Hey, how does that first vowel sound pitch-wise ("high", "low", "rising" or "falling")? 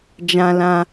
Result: high